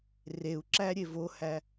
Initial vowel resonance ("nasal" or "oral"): oral